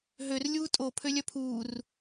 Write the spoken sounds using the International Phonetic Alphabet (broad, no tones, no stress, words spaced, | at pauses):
ɦør lʲuːtʼo pʰølʲœpʰuːr